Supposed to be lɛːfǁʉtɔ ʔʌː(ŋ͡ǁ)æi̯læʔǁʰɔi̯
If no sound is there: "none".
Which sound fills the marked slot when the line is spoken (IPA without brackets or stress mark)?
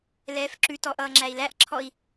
ŋ͡ǁ